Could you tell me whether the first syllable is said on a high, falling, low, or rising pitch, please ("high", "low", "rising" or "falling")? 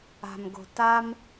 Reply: low